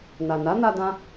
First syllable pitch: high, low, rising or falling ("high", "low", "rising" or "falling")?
low